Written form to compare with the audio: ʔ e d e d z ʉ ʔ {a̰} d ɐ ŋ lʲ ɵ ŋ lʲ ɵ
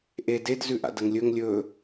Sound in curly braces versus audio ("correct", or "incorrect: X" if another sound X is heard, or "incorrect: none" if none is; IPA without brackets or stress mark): correct